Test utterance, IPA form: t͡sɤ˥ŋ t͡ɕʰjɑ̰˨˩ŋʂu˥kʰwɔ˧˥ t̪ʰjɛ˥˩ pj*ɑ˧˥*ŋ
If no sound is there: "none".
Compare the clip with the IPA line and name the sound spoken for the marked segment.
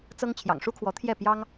ɑ˥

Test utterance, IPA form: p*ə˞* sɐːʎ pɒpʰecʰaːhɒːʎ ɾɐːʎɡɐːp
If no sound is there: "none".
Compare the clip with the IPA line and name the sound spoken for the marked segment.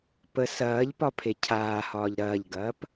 ə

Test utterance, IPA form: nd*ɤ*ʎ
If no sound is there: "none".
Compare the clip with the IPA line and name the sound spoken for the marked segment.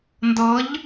ɤ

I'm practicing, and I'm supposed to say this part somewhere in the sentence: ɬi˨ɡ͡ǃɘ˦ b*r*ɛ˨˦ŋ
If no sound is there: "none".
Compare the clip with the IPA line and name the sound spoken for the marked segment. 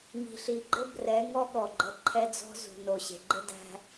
r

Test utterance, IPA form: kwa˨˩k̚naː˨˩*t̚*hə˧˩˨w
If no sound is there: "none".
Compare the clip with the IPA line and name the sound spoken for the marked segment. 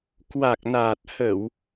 t̚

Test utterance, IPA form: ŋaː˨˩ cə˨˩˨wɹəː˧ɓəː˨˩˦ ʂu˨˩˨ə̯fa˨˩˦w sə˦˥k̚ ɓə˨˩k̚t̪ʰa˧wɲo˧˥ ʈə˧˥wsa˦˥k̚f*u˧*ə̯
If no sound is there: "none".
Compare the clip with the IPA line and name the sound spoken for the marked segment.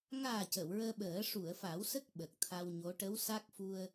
u˧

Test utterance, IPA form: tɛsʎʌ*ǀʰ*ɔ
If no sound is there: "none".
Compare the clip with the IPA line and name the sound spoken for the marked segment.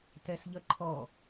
ǃʰ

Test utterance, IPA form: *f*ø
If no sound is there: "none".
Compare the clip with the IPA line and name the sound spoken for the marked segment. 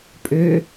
pʼ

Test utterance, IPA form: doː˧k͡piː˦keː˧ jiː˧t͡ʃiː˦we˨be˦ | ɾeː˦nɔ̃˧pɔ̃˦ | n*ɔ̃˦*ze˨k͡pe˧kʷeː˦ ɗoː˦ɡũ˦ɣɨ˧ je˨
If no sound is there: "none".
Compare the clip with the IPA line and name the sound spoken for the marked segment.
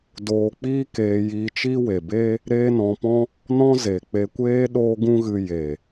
ɔ̃˦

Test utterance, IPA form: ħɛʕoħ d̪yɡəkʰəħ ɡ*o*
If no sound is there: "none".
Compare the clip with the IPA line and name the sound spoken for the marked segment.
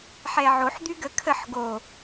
o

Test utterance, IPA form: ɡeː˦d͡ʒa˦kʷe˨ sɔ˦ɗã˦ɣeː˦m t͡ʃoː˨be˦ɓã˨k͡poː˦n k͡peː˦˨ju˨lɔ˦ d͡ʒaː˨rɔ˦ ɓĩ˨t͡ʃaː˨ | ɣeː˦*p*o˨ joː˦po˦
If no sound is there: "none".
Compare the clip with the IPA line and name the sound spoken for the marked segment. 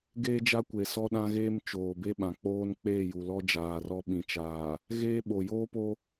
ɓ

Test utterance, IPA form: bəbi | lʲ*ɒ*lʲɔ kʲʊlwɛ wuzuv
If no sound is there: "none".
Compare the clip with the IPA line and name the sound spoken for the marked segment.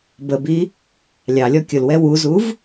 ɑ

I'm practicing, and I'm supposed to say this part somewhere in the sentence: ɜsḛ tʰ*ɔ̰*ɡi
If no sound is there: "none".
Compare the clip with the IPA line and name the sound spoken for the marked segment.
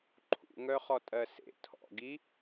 ɔ̰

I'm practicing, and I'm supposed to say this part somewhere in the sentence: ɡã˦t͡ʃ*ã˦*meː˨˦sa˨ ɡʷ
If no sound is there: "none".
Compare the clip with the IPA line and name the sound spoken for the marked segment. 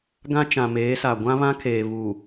ã˨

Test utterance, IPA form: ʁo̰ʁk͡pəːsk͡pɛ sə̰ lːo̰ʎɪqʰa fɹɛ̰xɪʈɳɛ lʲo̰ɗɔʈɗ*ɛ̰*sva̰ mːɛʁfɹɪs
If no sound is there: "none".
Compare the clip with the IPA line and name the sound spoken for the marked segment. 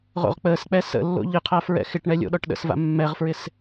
ə̰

